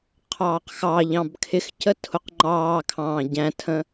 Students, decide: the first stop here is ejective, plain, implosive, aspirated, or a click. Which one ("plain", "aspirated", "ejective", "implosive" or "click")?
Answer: aspirated